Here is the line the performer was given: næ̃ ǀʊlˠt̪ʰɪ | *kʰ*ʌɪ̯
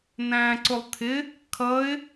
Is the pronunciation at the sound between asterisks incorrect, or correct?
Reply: correct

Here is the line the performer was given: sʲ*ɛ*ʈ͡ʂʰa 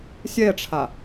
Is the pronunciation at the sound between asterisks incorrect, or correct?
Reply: correct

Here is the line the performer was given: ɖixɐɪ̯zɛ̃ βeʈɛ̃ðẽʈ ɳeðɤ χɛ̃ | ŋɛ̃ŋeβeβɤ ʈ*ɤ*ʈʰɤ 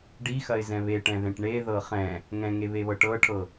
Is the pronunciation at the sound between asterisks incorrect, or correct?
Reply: correct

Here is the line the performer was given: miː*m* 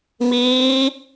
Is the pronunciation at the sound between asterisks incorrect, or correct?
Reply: incorrect: none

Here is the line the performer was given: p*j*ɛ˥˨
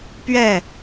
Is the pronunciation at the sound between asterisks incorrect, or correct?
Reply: incorrect: ɥ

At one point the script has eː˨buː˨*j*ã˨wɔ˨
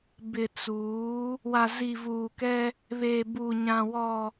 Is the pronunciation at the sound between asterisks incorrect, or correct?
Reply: incorrect: ɲ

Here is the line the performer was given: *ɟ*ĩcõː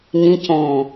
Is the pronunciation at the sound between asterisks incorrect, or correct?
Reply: incorrect: ɲ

